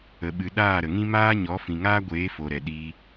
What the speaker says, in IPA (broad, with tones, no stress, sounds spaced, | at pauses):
ə˨ ɓ ɨ˨ ɗ aː˦˨ ɾ ə˨ ŋ ĩ˦ m aː˦ ɲ ɔ˨˦ f ĩ˨ ŋ aː˦ ɡʷ eː˨˦ f o˨ ɾ ɛ˨ ɗ iː˧